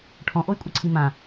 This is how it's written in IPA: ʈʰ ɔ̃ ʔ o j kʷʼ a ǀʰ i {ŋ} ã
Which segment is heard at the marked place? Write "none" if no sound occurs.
m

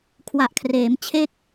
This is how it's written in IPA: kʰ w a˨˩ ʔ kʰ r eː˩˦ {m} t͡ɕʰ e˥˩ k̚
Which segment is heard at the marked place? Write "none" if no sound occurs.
m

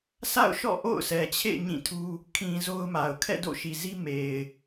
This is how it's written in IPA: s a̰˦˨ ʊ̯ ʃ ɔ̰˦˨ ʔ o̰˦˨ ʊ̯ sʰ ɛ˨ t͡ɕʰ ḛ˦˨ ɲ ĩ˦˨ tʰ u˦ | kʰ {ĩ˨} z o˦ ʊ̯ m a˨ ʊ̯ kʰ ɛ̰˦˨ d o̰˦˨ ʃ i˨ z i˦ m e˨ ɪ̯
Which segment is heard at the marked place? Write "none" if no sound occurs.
ĩ˨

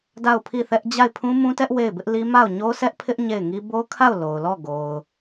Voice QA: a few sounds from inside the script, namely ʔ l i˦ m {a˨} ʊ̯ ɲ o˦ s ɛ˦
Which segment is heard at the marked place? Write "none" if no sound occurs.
a˦˨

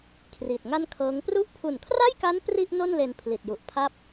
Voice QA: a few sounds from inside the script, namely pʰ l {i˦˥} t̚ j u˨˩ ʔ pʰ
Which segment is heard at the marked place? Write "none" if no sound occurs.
i˨˩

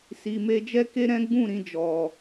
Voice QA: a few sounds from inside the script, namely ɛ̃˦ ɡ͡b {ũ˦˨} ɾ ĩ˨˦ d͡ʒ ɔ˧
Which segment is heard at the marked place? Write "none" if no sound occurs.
ũ˦˨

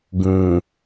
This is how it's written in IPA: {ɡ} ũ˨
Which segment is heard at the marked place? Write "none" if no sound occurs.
ɡ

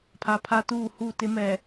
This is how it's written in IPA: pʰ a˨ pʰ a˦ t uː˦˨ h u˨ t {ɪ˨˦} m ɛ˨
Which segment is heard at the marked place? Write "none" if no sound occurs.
ɪ˨˦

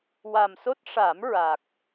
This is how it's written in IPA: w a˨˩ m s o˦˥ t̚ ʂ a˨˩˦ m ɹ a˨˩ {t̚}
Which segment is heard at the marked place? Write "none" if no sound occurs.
k̚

